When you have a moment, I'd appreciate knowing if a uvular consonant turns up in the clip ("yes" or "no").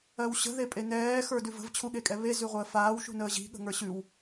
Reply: yes